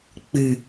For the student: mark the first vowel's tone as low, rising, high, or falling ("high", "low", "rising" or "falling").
low